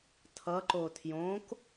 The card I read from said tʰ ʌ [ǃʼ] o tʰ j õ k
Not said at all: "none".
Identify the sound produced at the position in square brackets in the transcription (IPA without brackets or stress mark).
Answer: ǃ